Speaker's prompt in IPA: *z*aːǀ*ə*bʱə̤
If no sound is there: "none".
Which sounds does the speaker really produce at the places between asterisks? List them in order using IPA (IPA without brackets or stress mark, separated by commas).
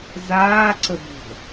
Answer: z, ə